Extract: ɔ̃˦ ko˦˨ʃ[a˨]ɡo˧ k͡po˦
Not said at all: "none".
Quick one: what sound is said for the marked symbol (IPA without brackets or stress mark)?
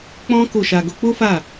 a˧